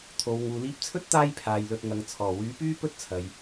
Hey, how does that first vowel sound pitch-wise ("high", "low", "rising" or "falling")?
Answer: low